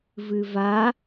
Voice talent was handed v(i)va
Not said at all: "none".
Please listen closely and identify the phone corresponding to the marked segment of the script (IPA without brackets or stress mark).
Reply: ɨ